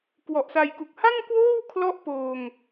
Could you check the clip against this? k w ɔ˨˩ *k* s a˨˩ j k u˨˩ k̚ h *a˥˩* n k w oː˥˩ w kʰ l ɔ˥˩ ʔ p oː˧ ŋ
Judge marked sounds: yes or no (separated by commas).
no, yes